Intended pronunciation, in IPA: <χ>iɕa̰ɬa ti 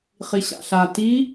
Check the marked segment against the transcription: correct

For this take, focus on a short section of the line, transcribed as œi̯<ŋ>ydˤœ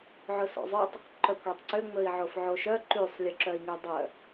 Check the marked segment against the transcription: correct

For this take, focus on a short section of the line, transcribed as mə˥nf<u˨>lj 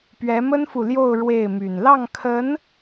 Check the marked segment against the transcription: correct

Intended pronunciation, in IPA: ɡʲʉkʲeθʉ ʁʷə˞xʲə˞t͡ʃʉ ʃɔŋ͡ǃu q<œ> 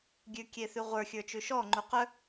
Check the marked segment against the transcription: correct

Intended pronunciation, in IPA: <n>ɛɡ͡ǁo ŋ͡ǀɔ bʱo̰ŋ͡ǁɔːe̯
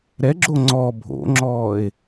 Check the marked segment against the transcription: incorrect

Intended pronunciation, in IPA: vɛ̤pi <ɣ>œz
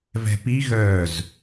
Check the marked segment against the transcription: correct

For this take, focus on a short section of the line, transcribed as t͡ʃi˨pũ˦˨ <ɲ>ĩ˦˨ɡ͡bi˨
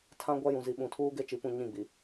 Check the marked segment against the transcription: correct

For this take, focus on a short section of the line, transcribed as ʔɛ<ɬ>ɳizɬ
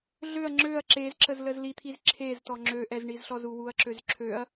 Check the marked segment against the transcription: incorrect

